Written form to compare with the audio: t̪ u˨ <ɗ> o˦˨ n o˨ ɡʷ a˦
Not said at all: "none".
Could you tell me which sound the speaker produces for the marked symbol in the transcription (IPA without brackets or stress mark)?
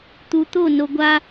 t̪